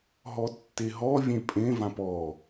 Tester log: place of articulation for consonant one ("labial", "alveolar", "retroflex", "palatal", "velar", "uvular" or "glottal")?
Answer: glottal